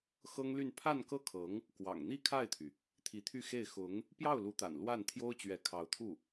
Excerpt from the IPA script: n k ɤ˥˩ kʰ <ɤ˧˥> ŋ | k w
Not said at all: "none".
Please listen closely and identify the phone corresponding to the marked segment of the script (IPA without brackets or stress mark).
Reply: ɤ˧˥